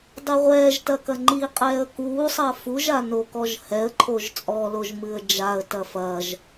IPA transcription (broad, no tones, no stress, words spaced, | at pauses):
dˤeʁʷɛːʒtɐ kɐŋ͡ǃiqʼɛːə̯ kuːsˤɐ fuʒa nokɔʒhɛə̯ǃʰoʒ t͡sʼɔloʒ mɨə̯d͡ʒaə̯tɐ fɐʒ